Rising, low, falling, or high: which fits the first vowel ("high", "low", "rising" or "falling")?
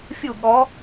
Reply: falling